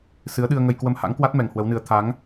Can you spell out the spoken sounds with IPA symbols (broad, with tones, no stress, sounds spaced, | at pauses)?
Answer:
s ɨ˨˦ ə̯ ɗ ɨ˧ ə̯ ŋ ə˧ j k w ə˧ m h a̰˧˥ ŋ k w a˦˥ t̚ m ɛ˨˩ ŋ h w ə˨˦ w n ɨ˨˦ ə̯ t̪ʰ a˨˦ ŋ